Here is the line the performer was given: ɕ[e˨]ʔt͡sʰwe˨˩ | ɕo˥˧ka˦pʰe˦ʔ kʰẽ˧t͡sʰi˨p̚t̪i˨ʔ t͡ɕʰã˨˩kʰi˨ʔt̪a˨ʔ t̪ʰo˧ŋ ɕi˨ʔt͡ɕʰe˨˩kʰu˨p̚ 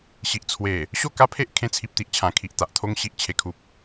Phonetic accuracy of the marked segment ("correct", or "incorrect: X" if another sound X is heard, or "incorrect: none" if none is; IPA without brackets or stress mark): incorrect: i˨